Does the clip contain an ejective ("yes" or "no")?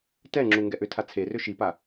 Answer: no